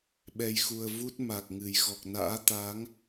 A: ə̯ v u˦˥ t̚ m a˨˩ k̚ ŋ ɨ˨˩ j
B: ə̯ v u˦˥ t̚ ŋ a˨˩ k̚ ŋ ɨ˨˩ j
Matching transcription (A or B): A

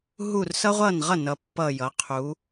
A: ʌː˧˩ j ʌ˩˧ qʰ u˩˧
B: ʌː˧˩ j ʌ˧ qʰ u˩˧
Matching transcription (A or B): A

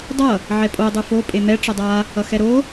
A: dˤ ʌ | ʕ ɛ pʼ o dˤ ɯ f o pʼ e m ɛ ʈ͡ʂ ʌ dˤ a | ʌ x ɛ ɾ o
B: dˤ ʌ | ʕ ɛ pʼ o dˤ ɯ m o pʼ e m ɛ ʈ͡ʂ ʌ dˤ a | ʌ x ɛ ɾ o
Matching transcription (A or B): A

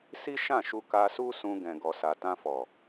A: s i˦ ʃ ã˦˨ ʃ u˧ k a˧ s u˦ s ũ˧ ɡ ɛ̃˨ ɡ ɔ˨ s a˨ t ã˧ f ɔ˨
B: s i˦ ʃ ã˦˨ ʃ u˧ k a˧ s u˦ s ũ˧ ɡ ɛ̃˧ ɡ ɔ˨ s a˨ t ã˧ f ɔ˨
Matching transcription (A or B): A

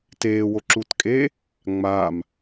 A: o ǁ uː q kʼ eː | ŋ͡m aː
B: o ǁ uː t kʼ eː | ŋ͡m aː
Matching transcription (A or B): B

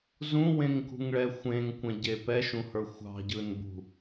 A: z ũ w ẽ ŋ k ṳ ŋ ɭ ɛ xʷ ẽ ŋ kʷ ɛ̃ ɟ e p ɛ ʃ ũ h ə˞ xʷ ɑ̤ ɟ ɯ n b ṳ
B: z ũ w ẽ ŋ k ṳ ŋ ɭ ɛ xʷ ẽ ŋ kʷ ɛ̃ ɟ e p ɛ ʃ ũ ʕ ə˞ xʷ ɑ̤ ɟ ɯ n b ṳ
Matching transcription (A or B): A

